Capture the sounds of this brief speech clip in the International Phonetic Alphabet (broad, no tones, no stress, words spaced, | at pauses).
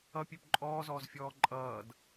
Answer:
ʌpʲøp ǃʼɔːzɔːzfʲɔː ǃʼʌːd